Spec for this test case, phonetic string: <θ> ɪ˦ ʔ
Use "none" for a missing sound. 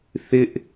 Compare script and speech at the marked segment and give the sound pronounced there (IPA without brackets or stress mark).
θ